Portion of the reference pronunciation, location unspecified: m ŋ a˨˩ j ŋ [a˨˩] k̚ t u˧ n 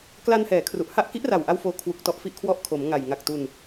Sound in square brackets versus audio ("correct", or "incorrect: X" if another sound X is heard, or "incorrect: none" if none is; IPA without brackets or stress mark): correct